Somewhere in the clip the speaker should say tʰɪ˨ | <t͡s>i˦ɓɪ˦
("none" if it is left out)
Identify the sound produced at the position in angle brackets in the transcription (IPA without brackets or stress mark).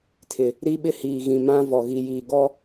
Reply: ɾ